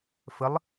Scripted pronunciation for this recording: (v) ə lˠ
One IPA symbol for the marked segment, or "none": f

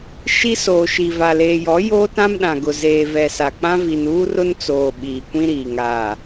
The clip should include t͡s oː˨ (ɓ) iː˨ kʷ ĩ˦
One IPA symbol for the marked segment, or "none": ɓ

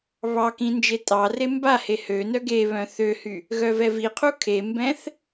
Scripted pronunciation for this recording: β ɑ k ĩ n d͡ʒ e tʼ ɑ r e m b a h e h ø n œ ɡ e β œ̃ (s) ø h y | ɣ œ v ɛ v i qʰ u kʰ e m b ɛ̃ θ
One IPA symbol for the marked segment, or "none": θ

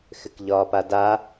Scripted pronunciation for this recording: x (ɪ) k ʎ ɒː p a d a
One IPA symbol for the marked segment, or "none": ɪ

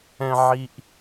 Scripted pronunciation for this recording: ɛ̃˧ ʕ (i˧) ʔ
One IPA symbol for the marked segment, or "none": i˥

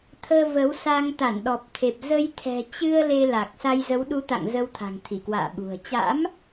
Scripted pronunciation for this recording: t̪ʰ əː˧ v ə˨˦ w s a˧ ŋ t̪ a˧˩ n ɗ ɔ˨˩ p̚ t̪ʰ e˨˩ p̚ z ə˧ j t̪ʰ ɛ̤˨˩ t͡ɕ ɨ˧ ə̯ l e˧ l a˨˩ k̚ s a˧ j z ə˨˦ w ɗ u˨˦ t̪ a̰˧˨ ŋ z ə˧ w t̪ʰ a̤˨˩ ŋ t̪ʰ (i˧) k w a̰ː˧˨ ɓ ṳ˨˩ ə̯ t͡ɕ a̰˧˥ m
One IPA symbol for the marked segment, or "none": i˧˩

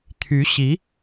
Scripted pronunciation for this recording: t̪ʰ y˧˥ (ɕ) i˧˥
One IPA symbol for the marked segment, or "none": ɕ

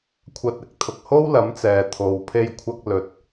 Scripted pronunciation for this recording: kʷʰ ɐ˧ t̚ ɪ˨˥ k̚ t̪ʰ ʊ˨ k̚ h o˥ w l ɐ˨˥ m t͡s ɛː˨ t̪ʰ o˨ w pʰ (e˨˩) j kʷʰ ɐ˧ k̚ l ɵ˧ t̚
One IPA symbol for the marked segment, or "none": e˧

